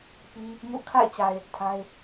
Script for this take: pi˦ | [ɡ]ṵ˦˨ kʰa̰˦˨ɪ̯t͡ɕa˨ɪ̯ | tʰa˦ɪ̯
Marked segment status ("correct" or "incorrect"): incorrect